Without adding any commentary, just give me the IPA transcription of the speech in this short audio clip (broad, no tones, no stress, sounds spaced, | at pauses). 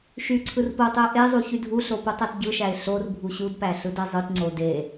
ʃ y ǀʰ ɯ r p o tˤ ɯ ə̯ ʔ e zˤ u ç y dʱ u ɬ o p u tˤ æ t ɟ ɯ ʃ æ ɪ̯ ɬ o r bʱ u ɕ u d p æ ɬ ɯ d e zˤ ɯ t ŋ͡ǀ o d e